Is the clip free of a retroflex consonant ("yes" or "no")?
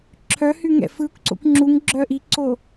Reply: yes